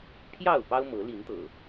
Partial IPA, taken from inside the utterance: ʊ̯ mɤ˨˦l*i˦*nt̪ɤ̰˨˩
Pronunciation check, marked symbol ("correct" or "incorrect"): incorrect